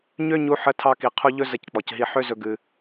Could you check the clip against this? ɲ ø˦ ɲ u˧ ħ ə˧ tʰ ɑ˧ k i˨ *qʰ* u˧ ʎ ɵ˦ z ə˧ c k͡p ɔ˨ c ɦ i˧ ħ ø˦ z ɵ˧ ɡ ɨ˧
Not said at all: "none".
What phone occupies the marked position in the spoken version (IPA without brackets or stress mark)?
qʰ